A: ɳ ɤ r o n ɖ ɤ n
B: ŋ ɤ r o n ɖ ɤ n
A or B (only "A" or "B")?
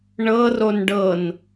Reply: A